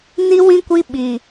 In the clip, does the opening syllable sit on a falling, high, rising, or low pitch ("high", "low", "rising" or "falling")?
high